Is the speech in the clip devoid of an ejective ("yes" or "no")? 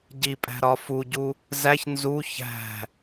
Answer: no